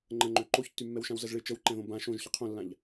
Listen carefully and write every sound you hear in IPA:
ŋ͡ǃ ə̃ ŋ͡ǃ ø ǃ o ç tː y mː ɛ w ʃ ã w z ə z ɭ ɪ t͡ʃ ə w ǃ ɛ̃ ð õ b ã ʃ õ ʒ ç ə qʰ õ lː ã ʎ

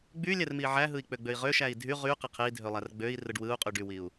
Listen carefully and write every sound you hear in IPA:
ɡ͡b y lʲ æ r m i ʕ æ ɦ ɯ i̯ k͡p ø ɡ͡b ø i̯ ʁ ø ʃ æ i̯ dʱ y ʁ y q e qʰ e i̯ dʱ ø lˠ æ r ɡ͡b ø i̯ r ɯ ɖ w ɯ u̯ qʼ y ɖ y w i u̯

